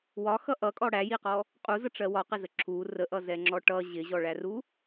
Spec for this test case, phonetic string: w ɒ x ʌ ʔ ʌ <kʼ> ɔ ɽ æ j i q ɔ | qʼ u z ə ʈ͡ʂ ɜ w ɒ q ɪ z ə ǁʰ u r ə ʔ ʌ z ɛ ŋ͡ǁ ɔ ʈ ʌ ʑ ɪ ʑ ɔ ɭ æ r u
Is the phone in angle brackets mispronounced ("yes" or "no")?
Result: no